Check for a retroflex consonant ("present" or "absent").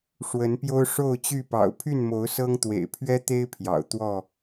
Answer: present